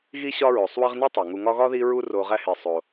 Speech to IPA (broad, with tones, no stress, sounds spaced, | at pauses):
ɣ i˦ ɕ ɒ˦ ɹ o˩ sˤ w e˦ ʁ n æ˥ tˤ æ˩ ŋ u˨ ŋ ɒ˦ ɣ ɒ˥ ð i˥ ɹ u˥ r o˨ ʁ æ˦ h e˩ sˤ o˩